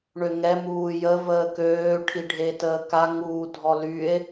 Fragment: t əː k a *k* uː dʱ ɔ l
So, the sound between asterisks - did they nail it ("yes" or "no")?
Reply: no